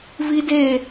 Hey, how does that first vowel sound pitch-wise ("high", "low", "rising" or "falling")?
high